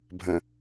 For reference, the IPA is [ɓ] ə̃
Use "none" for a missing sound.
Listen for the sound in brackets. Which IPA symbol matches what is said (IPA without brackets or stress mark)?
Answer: bʱ